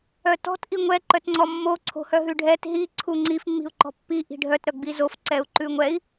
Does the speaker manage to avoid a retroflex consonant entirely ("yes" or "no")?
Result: no